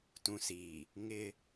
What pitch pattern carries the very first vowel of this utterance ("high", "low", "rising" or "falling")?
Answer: low